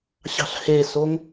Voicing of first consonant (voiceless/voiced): voiceless